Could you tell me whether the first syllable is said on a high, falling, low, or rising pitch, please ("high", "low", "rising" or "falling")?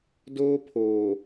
high